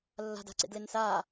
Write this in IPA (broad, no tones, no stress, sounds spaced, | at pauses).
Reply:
lː a̤ d a̤ ǀ ḛ d l e n s aː